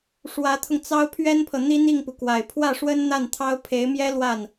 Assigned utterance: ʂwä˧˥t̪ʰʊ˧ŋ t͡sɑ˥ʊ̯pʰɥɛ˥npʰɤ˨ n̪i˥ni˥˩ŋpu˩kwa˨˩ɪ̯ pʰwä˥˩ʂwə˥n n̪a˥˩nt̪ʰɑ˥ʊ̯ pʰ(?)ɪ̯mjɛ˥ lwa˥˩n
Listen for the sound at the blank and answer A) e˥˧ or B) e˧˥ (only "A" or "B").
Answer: B